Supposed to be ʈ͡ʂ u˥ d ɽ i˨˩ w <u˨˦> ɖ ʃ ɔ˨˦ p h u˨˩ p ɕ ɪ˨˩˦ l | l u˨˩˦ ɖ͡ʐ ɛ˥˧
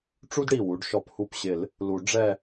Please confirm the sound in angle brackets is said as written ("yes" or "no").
yes